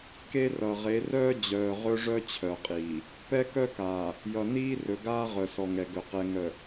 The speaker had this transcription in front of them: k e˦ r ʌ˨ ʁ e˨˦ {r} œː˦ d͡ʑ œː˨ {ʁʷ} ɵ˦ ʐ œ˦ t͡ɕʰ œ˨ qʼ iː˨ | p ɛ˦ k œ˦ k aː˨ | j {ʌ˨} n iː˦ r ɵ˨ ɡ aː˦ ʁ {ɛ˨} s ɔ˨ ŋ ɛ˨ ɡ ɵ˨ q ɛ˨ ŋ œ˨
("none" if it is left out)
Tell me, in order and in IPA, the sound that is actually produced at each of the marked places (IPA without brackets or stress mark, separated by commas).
r, ʁ, ʌ˨, œ˨